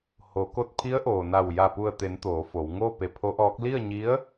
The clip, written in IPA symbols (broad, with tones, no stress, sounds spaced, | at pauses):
h o˩˧ k o˧ t̚ pʰ i˧˥ ə̯ ʔ oː˩ n a˧˩ w j a˧˩ p u˧˩ ə̯ t̪ e˩˧ n t̪ oː˩˧ f o˩˧ w ŋ o˥˨ p e˧˩ pʰ o˧˥ ʔ ɔː˧˥ k̚ l i˥˨ ə̯ ɲ i˧˥ ə̯